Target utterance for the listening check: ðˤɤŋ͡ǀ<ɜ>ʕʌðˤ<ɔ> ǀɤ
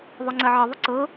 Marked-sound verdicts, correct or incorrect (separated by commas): correct, incorrect